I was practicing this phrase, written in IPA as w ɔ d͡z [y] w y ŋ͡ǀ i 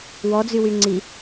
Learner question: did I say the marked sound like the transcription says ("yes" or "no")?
yes